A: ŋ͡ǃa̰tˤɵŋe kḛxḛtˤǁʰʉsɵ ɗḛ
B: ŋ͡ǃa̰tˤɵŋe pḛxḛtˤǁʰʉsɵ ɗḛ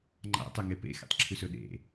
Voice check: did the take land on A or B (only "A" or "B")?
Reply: B